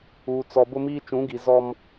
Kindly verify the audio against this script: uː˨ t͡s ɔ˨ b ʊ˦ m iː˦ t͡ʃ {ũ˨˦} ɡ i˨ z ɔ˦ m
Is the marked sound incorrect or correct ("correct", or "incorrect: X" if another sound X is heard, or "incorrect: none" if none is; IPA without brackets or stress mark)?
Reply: correct